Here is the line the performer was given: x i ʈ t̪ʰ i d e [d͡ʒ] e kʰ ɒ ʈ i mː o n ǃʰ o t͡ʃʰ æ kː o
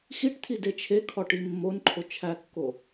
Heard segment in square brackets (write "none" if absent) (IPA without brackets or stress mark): t͡ʃʰ